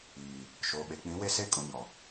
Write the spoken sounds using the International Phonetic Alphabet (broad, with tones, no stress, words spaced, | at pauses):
iː˨ | ʃoː˨ɓe˨ k͡pĩ˨˦we˦ se˦˨ kʼũ˨ɲɔ˨